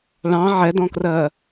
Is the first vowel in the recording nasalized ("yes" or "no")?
yes